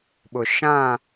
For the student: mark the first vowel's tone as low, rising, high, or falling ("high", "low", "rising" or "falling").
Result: low